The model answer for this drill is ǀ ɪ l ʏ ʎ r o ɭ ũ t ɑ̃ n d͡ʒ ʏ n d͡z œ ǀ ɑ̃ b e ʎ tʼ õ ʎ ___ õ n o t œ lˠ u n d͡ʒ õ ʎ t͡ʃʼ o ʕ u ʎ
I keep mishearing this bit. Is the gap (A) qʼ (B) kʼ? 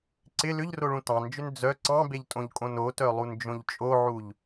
B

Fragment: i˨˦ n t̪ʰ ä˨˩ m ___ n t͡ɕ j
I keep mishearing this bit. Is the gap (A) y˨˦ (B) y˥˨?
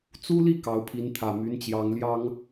A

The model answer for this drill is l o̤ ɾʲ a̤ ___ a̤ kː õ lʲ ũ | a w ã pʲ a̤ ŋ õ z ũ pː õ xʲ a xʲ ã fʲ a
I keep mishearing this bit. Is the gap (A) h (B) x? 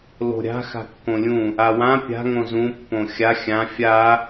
B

